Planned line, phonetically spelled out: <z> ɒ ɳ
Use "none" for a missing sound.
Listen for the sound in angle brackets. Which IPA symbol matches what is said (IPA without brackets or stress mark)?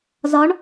z